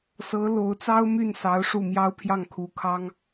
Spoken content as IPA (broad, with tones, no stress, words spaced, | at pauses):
sɤ˧˥lo˧˥ʊ̯t͡sɑ˥ʊ̯ my˥˩n sɑ˧˥ʊ̯ʂu˥˩mjɑ˥ʊ̯pʰjɑ˥˩ŋ kʰu˧˥ kʰɑ˥ŋ